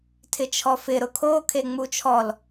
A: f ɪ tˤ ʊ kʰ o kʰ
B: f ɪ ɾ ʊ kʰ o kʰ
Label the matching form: B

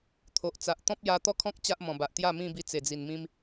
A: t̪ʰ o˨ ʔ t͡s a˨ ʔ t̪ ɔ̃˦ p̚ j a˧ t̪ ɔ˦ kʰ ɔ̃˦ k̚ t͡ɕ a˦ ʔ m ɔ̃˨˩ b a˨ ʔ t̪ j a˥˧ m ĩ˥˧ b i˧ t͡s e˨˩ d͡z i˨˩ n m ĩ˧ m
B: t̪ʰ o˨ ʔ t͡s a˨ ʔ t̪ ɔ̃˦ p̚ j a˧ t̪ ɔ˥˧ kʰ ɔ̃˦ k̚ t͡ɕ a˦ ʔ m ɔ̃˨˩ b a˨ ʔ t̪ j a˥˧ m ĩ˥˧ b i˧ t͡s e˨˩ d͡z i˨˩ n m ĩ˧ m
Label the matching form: B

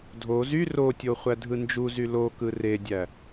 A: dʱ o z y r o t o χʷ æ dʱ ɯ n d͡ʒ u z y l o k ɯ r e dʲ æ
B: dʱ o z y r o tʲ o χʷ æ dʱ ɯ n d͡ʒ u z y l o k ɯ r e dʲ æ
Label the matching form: B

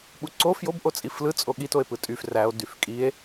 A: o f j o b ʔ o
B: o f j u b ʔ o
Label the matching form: A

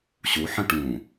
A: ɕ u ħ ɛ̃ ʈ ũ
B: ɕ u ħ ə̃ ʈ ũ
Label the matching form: B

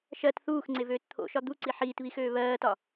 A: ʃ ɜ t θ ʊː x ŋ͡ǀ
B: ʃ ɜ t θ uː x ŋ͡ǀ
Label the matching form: B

